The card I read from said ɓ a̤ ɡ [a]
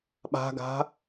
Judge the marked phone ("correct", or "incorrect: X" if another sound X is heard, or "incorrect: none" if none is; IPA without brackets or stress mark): incorrect: a̤